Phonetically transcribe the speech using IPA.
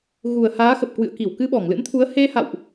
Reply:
ɣu˨˩ə̯haː˨˦xə˨˩p̚ kwɨ̰˧˨ə̯ki˧˩w kɨ˧ɓɔ˧˩ŋlɨ̰˧˥nt̪ʰu˨˦ə̯ he˧ha̰˧˨wʔ

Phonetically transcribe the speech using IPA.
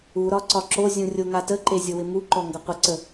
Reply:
uɾɒ ǀɒǁozʲũ rʲoŋatəǃe zʲowɪmuǃɔ ŋɡʌqʷəǀə

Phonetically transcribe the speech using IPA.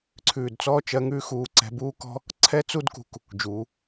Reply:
ǀʰʉː˧˩d t͡sɔː˥˧t͡ʃɜ˧ŋʉ˥˧xuː˧ ǀɛ̤˧buː˥kɔ̤˥ | ǀʰɛ˥t͡su˥dkṳ˧k | d͡ʒuː˩˧

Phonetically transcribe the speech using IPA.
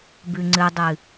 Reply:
bʉŋ͡ǀɨdˤɨ

